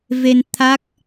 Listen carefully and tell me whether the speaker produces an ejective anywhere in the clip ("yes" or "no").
no